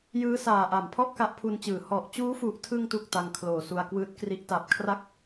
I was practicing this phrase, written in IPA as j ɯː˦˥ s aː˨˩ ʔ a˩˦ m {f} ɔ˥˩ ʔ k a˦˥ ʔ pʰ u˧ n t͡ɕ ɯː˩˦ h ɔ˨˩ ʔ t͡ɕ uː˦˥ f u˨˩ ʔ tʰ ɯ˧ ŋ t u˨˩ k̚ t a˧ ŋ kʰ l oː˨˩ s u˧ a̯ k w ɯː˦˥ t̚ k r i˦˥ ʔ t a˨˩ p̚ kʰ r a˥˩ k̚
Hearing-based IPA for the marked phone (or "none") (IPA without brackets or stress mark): pʰ